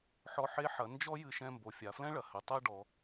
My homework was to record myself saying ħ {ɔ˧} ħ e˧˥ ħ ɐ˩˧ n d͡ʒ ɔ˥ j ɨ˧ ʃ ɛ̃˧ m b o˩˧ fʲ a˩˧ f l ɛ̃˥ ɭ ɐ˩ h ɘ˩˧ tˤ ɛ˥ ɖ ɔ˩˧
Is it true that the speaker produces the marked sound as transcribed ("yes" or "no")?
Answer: yes